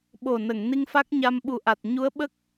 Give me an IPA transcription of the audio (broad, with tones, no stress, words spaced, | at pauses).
ɓo˨˩nə˨˩˨ŋ ni˧ŋfa˦˥k̚ɲa˧m ɓu˨˩ʔa˨˩t̚ ɲu˧˥ə̯ ɓə˦˥k̚